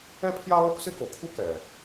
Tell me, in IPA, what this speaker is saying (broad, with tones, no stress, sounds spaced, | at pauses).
ɛ˥ pʰ j a˥ lˠ u˥ k s ɪ˥ k o˩ kʰ u˥ k ɛ˩